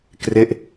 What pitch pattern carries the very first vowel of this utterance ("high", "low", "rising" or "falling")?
falling